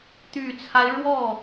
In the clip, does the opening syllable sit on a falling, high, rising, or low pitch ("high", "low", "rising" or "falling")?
low